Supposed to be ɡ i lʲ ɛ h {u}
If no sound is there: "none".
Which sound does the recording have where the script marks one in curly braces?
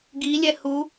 u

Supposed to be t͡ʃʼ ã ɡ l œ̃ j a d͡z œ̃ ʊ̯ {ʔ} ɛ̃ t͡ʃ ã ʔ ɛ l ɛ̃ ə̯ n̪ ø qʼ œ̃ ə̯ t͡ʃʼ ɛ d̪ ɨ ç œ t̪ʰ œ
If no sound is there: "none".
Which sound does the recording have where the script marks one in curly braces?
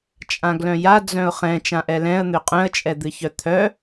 χ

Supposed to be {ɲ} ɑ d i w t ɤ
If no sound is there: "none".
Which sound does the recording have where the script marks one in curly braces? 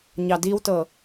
ɲ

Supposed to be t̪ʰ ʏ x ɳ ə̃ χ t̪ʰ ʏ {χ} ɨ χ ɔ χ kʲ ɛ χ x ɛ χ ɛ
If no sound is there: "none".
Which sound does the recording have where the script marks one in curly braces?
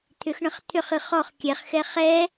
χ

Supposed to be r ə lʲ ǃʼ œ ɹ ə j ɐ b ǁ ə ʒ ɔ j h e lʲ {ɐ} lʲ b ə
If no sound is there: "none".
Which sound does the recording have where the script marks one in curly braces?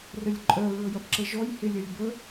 ɐ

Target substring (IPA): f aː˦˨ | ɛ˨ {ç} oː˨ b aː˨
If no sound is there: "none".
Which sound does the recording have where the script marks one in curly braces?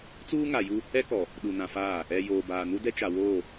j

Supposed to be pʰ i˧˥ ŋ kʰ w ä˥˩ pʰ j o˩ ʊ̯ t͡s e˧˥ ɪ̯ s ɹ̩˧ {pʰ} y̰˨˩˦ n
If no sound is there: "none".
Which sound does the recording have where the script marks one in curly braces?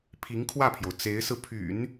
pʰ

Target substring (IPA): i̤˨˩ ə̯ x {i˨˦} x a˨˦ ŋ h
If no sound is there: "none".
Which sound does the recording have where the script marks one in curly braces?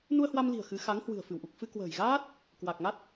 ɨ˨˦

